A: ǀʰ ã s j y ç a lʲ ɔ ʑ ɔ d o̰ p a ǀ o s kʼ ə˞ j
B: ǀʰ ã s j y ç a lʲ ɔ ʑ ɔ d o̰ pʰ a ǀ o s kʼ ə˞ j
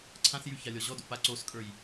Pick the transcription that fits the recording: A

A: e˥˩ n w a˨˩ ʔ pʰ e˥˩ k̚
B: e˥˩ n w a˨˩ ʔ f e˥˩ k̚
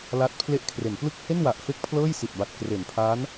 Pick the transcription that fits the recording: B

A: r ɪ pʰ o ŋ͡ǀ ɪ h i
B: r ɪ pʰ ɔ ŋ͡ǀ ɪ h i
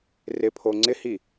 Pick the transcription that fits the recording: A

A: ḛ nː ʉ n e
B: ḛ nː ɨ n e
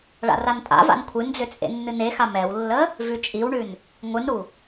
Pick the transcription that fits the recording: B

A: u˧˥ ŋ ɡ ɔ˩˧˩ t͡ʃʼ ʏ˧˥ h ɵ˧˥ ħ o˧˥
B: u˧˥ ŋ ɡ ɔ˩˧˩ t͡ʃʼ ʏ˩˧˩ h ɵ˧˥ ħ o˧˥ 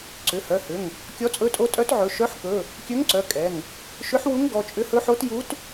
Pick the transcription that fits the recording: A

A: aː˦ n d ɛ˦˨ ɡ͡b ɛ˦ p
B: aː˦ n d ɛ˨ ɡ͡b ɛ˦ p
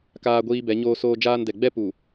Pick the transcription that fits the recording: B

